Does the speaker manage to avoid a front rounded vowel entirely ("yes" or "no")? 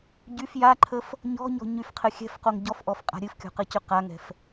no